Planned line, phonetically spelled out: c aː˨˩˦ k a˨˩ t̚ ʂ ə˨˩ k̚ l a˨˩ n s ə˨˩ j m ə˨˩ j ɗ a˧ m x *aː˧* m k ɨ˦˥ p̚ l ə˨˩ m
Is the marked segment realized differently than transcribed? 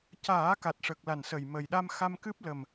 yes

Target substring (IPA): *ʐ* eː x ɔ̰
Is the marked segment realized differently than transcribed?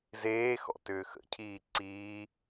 yes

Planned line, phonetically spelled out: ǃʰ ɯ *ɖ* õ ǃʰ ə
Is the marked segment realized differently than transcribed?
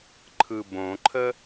yes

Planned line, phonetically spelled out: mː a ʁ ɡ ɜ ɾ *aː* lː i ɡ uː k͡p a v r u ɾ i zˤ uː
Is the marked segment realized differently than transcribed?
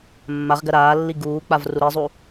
no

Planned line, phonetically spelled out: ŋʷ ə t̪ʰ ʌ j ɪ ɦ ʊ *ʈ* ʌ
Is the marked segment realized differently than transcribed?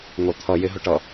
no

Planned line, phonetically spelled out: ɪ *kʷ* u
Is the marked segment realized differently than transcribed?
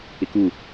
yes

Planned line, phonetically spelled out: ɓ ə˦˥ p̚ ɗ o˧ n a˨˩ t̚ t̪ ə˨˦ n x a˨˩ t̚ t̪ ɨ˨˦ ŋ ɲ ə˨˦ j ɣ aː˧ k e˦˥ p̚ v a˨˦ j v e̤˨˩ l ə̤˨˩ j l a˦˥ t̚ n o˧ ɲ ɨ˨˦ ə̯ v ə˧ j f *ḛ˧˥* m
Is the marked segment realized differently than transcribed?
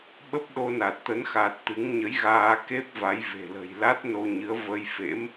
no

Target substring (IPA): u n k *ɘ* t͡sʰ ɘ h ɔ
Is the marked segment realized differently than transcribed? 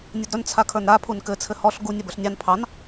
no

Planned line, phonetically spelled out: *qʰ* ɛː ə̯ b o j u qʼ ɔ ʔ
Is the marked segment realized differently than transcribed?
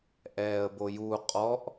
yes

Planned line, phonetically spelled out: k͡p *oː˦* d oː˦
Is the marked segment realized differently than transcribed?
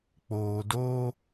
yes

